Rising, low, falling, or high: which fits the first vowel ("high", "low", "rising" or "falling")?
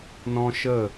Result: high